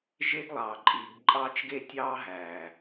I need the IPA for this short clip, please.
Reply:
ʒe˦ɡlˠɑː˨ǃʼiː˨ɡ ǃʼɑː˦t͡ʃɡe˦ tʲɑː˦ɦæː˨

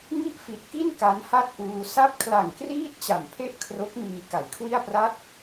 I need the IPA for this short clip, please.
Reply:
ŋi˥˩ʔfi˨˩t̚ki˥˩n ka˦˥nha˥˩t̚ʔuː˧ sa˦˥p̚kʰla˨˩ŋ kriː˥˩t̚ t͡ɕa˨˩mpʰe˥˩ʔ kʰro˦˥k̚miː˧ ka˨˩jkʰwi˥˩a̯pra˥˩t̚

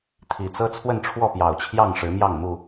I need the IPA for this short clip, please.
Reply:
t̪ʰi˨˩t͡sɤ˦ t͡sʰwə˥˨nʈ͡ʂʰwɔ˥˨pjɑ˨˩ʊ̯t͡ɕʰjɑ˥˨ŋ ʂɻ̩˨˦mjɑ˥˨ŋmu˥˨

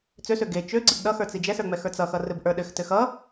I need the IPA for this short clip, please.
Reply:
t͡søsø ɡe t͡ʃø ɡ͡ǀibɗʌxə˞ t͡sid͡ʒɛsə˞ ŋ͡mɛxə˞t͡sʌxʌ rɘbʔə˞ɗɘxtɘ xʌ

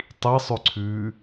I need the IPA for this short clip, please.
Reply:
tˤisˤʉǀʰʉː

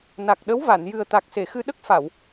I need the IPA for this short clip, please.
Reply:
na˨˩k̚ɗə˧˥wva˨˩˨n jɨ˨˩ə̯t̪a˨˩k̚se˨˩˨xɨ˧ ɗə˦˥k̚fa˨˩˨w

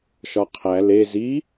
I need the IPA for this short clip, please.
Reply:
ʃɒqʰæ le zi

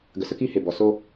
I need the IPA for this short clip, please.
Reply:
ɡə˨sə˦ki˦˨ he˨ bɔ˨˦ so˦

